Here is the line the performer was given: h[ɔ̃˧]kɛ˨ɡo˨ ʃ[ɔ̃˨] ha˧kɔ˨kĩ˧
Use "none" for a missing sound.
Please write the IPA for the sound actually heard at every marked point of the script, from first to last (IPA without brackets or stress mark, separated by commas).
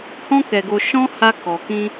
ɔ̃˧, ɔ̃˧